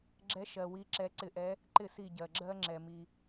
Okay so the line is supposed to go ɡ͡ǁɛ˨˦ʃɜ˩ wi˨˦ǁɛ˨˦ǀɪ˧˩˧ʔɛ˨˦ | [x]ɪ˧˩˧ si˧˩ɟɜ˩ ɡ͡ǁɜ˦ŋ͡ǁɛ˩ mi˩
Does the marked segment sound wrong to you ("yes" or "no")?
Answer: yes